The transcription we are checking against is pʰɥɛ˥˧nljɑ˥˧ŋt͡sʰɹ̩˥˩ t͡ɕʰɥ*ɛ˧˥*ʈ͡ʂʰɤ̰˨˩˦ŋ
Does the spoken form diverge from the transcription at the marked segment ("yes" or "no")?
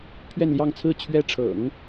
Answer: yes